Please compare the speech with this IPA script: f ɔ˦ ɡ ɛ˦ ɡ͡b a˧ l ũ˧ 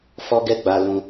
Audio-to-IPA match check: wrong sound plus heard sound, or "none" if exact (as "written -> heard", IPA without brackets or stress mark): none